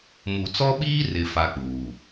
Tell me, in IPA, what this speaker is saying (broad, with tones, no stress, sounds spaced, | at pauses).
m u˨ t͡s ɔ˦ ɓ iː˦ r ɪ˨ f a˦ k͡p uː˨